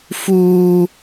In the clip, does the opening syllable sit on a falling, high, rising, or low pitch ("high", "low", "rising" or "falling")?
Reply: high